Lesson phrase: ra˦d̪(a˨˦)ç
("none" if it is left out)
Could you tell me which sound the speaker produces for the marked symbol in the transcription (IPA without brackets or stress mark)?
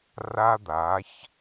a˨˦